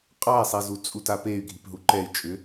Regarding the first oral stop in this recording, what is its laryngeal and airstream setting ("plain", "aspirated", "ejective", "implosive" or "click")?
ejective